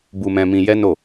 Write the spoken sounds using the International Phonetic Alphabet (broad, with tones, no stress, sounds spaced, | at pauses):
b u˧ m ɛ̃˧ m ĩ˧ j ɛ˦ n o˦˨